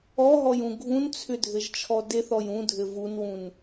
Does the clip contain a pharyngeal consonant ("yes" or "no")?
no